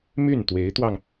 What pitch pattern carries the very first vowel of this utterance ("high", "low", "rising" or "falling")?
falling